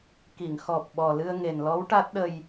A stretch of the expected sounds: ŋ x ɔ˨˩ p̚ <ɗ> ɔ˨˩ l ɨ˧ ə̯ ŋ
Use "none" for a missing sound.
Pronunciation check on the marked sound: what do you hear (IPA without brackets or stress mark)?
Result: ɓ